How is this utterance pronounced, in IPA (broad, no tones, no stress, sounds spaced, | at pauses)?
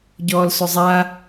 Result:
ɟ ɔː l s ʊ zˤ a